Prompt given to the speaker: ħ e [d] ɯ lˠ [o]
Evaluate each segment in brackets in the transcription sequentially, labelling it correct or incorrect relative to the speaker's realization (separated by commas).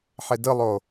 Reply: correct, correct